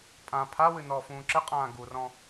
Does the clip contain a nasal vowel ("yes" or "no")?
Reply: yes